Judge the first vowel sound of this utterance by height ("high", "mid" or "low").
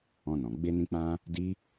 mid